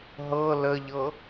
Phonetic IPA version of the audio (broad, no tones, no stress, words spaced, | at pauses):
ɦɤ ləʎɤ